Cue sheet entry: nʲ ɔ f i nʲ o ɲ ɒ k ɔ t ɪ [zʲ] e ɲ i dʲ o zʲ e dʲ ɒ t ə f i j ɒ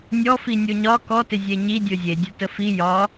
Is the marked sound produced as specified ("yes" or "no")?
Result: yes